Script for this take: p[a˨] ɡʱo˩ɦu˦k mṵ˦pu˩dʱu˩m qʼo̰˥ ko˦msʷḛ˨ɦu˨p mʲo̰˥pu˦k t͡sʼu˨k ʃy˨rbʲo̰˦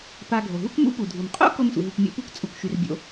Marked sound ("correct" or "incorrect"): correct